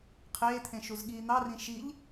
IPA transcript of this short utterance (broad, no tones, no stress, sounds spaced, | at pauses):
qʰ eː t̪ʰ ẽ ʃ u z ɠ iː n̪ ɑ r ĩ ʃ i ʎ